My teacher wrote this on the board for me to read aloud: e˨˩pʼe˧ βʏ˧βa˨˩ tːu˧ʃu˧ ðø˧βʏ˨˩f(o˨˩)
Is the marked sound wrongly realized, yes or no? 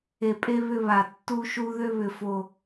no